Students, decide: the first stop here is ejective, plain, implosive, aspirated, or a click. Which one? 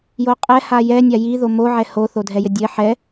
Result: ejective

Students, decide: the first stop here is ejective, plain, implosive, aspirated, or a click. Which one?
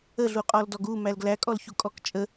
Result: ejective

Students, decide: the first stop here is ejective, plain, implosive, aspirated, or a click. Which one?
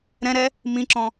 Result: click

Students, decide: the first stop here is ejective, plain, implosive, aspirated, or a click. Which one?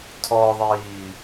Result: aspirated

